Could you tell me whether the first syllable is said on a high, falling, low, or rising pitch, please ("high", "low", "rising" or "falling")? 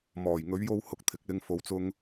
low